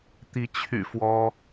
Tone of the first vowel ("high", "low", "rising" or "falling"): rising